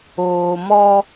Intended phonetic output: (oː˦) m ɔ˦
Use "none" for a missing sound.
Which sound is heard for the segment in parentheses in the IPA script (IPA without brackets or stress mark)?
oː˨